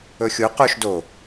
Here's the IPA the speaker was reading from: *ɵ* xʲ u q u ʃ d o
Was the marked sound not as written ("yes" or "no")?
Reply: no